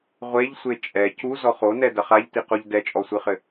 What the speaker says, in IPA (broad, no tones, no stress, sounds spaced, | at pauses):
ʁʷ e ʎ sʷ e t͡ʃʼ ɛ c u z ɔ χ o n ɛ d ɐ χ a ʎ t i q o ʎ d ɛ t͡ʃʼ ɔ sʷ ɨ χ ɘ